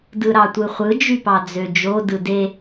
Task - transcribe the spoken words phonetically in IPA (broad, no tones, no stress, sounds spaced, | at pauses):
d ɯ ɾ ɑ tʷ ɯ χʷ ɯ d͡ʒ y p ɑ d͡z ø d͡ʒ o d ɯ d e